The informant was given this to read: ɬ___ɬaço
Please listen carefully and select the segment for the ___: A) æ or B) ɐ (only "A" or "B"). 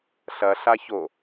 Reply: B